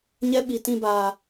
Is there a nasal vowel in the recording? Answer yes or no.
yes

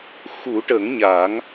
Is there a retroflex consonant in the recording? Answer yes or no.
yes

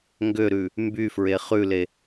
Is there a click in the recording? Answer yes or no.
no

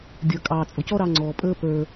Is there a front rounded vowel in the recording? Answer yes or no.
no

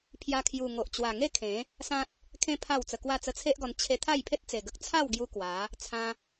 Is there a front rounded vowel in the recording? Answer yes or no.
no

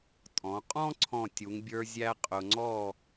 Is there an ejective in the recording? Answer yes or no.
yes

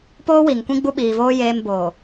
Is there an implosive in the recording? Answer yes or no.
yes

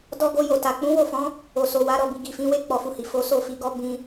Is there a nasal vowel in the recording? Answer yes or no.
yes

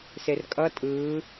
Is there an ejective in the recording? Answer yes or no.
yes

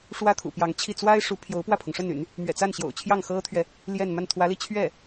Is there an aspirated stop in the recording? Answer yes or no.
yes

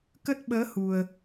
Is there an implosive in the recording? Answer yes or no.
yes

